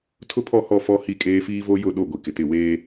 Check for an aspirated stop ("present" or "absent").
present